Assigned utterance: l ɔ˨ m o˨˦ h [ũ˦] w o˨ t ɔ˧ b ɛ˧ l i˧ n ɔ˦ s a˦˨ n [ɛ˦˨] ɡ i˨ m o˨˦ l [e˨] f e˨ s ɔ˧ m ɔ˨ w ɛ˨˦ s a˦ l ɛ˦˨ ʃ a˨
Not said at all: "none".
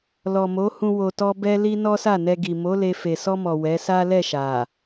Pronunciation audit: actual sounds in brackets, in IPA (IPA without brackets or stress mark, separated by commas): ũ˧, ɛ˧, e˧